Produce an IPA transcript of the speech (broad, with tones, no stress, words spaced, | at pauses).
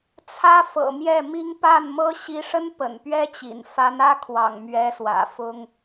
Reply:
t͡sʰä˥fɤ̰˨˩mjɛ˥˩mi˥ŋ pa˥˩nmɤ˥ ɕi˧˥ʂə˥n pə̰˨˩npɥɛ˥t͡ɕḭ˨˩n fa˧˥nä˥kʰwɑ̰˨˩ŋ mɥɛ˧˥swä̰˨˩ fʊ˥ŋ